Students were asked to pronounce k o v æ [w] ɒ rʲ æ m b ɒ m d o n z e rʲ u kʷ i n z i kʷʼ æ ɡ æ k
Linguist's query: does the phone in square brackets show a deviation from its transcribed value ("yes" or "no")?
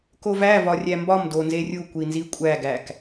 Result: yes